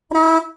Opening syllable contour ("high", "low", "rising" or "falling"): high